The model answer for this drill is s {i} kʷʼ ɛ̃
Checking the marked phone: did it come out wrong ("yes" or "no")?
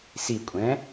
no